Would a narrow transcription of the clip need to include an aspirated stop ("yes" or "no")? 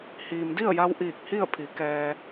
yes